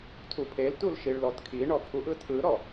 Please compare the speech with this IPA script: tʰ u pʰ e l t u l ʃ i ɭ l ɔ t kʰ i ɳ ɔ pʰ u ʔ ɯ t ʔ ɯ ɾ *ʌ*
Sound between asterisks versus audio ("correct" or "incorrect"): incorrect